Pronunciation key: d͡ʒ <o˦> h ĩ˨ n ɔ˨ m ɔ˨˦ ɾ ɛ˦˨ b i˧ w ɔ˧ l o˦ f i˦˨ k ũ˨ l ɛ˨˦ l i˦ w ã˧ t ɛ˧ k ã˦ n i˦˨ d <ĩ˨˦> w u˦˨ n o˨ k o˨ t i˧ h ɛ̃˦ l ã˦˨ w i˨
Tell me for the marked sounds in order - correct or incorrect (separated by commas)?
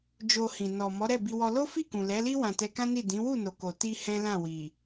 incorrect, correct